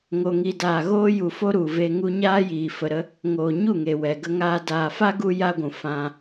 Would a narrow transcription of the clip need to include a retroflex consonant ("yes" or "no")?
no